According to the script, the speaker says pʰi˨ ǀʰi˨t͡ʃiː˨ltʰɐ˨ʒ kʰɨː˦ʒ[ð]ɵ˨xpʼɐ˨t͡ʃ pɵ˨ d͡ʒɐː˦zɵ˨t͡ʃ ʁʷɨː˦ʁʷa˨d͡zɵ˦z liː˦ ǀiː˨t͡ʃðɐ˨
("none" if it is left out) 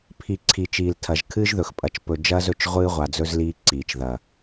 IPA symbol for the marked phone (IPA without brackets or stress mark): ð